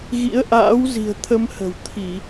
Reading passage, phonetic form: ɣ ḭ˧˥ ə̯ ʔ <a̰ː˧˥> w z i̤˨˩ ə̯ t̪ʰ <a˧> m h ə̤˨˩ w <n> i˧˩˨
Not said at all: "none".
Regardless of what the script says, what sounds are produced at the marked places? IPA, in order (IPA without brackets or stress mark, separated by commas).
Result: a̰ː˧˥, ə˧, t̪ʰ